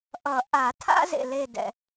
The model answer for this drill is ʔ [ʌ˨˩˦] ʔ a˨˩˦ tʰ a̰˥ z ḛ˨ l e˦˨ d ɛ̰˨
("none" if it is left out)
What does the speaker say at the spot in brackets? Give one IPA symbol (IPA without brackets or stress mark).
ʌ˨˩˦